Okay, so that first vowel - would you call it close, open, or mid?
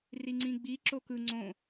close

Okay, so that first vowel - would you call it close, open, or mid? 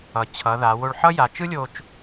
mid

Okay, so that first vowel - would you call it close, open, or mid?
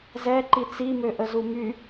mid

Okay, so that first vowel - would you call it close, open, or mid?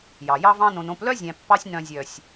open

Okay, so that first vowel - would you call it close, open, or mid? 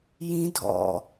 close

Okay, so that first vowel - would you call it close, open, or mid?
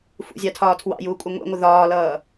close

